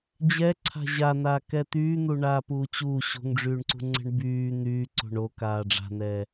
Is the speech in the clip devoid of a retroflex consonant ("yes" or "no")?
no